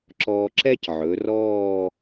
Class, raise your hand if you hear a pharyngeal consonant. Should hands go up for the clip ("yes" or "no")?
yes